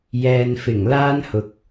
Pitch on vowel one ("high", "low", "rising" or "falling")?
low